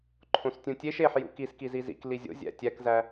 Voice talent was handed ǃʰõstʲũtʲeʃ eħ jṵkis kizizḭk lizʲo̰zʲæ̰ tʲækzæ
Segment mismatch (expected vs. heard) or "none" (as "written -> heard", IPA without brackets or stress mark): none